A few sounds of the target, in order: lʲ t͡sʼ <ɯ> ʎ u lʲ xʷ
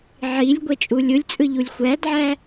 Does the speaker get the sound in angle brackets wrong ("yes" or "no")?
no